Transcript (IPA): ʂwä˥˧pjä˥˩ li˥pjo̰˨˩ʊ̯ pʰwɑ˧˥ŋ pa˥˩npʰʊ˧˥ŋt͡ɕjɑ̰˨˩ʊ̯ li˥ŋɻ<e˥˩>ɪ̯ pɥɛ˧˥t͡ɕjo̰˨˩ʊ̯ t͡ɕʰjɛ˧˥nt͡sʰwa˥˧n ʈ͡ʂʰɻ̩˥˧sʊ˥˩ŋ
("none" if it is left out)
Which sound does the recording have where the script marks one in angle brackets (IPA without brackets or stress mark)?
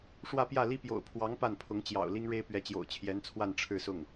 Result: e˥